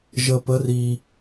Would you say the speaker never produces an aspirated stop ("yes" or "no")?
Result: yes